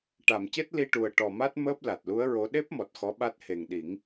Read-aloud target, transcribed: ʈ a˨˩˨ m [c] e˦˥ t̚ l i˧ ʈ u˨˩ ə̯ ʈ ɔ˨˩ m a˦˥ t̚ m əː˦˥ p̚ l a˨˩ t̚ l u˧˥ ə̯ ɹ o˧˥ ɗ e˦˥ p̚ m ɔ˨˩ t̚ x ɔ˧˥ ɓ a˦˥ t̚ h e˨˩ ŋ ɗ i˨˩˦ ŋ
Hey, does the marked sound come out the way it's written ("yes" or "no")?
yes